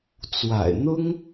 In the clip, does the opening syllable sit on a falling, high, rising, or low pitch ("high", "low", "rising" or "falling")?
low